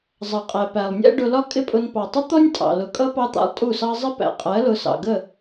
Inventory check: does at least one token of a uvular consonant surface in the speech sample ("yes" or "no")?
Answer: yes